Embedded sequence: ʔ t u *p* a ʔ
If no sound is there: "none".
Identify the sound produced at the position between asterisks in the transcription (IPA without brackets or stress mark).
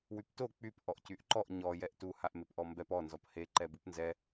h